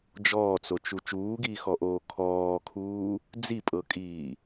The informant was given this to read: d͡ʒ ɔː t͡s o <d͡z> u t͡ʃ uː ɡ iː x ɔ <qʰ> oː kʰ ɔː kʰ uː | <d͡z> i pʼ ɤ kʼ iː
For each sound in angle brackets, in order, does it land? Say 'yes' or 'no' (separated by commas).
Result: no, no, yes